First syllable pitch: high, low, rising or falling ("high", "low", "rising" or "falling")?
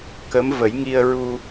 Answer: rising